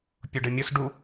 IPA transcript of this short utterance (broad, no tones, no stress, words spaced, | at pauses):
pʲʊɖɘmʲʊs ɖu